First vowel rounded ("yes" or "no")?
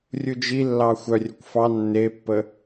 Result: yes